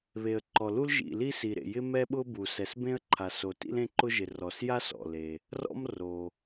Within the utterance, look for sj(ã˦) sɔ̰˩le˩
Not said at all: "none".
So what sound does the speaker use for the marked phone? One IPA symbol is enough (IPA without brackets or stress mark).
a˦